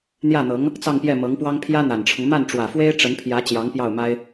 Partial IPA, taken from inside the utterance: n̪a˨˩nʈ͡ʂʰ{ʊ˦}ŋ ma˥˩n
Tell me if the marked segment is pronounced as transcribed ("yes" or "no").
yes